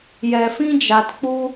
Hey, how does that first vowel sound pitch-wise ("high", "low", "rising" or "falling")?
low